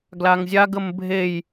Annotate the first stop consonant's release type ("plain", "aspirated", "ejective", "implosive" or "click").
plain